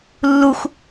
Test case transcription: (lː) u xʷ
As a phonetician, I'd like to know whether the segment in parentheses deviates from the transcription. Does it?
no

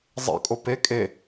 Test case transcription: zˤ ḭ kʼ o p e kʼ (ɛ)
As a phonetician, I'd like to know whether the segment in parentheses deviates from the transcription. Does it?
yes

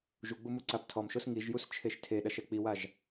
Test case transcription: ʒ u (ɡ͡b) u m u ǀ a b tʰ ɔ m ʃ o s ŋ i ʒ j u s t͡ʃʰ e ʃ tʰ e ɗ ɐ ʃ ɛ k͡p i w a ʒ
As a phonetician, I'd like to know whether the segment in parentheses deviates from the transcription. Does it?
no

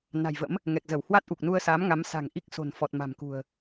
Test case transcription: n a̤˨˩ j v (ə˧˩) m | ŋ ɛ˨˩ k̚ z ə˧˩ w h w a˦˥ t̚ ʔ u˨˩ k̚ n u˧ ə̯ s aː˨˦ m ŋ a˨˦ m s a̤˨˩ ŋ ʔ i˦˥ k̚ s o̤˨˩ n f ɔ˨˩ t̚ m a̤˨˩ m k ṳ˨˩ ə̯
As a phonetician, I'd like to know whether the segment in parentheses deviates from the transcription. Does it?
yes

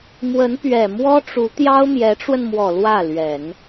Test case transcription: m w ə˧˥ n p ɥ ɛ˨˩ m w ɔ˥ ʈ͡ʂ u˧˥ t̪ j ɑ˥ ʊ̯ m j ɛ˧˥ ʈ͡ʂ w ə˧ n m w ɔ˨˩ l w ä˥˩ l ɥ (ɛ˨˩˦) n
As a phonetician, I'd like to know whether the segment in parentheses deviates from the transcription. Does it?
no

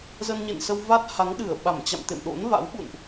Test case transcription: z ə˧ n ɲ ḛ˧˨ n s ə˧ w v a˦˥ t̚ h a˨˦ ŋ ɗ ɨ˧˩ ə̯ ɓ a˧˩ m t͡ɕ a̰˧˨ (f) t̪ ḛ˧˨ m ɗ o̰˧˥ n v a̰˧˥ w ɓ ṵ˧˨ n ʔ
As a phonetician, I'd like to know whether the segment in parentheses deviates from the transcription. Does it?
yes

